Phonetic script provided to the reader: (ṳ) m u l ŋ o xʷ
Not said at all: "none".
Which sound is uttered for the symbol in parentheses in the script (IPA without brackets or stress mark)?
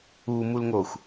u